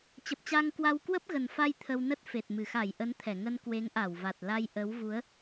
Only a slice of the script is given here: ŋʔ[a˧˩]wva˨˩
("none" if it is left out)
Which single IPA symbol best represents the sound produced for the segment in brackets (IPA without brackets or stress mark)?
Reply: a˧˩